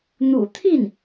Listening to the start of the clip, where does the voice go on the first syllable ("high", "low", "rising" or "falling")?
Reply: low